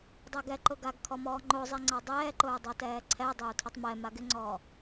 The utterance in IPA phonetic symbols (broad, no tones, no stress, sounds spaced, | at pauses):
dˤ ɛ ɡ ɛ ǃ ʊ ɡ a ɡ kʰ ɔ m ɔː ŋ͡ǃ o zˤ i ŋ͡ǀ a dˤ ɛː ǃ ʊː dˤ o t ɛː ǀʰ ɛ dˤ ɪ u̯ tʰ ʊ tˤ m ɛ m a ɡ ɪ ŋ͡ǀ ɔː